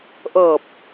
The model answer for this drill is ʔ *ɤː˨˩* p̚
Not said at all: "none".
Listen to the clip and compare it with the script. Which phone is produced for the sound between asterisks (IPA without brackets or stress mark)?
ɤː˨˩